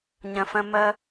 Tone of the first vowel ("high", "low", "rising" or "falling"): low